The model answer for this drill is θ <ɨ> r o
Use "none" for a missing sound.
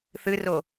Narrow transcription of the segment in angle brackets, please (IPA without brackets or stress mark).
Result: ɨ